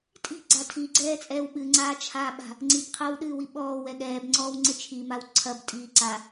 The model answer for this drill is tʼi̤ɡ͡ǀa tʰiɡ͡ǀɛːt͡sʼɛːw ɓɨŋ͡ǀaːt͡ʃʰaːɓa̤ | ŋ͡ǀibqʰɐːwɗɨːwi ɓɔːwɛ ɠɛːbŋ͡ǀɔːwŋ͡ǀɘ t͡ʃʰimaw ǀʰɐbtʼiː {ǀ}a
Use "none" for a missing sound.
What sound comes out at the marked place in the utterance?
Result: ǀ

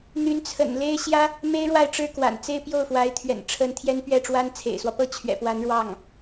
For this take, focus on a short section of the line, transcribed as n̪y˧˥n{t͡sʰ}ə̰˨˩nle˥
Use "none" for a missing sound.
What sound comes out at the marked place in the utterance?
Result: t͡sʰ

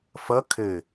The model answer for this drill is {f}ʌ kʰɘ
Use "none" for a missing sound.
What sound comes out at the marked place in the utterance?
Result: f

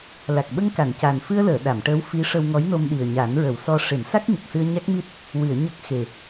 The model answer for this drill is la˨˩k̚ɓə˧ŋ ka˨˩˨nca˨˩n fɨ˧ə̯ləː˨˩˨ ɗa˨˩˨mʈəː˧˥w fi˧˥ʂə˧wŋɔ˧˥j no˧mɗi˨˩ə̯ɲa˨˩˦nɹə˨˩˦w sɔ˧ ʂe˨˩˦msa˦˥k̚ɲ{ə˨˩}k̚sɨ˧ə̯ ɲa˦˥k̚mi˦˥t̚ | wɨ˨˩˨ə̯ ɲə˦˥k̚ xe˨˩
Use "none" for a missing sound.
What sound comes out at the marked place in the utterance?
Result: ə˨˩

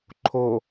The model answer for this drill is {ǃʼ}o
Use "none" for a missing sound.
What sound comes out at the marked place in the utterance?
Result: ǃʰ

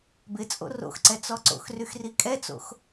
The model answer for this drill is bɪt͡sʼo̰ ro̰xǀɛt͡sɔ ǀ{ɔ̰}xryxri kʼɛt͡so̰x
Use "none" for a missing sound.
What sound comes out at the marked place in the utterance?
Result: o̰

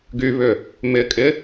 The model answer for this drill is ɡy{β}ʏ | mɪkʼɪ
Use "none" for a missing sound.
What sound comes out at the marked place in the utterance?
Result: β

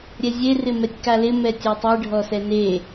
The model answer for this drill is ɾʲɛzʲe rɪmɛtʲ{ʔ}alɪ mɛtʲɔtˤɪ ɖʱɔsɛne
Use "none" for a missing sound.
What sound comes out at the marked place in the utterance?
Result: k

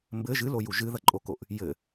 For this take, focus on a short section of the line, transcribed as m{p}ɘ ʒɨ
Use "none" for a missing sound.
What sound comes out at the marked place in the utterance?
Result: b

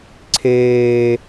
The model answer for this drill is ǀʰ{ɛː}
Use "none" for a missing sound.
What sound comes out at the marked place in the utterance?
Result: eː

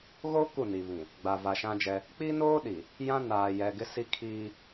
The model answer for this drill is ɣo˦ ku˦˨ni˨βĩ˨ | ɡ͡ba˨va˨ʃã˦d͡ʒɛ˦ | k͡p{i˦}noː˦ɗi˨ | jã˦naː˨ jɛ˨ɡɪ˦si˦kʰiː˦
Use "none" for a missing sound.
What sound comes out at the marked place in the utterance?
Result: i˦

